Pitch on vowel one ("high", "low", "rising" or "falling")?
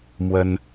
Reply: high